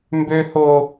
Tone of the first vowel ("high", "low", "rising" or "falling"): high